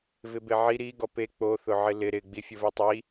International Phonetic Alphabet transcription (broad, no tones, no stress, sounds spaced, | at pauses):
v ɪ b e ʕ i ɾ i ɡ ɔ p e k͡p o θ ʊ ʕ ɪ l ɪ ɾ ɪ ɡ͡b i fʲ ʊ v ɛ tˤ i